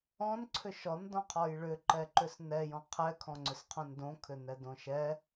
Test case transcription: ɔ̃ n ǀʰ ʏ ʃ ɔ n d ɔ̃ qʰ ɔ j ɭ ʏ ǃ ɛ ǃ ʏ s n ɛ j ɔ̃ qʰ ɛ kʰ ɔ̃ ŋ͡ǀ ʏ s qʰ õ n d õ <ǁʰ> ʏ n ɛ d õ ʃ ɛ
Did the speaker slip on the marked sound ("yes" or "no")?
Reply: yes